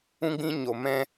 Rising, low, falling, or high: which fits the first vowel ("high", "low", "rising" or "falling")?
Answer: high